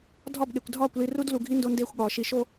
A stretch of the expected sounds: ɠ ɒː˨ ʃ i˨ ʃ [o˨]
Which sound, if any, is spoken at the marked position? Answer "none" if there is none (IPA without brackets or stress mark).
o˦